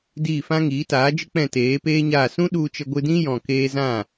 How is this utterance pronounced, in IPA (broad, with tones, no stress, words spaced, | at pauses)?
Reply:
diː˦˨fã˦ ŋiː˨˦taː˨˦d͡ʒɨ˦ k͡pɛ̃˦˨teː˨˦peː˦ɲaː˦˨ sũ˦ɗu˧t͡ʃə˧ ɡʷɨ˧dĩ˦ jɔ̃˧keː˦ zã˦˨